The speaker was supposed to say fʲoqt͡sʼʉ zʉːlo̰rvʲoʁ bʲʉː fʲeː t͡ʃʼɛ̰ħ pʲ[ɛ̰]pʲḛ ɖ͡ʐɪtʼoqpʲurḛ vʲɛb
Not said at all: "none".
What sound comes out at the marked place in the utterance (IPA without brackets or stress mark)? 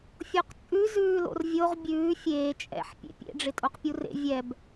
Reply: ḛ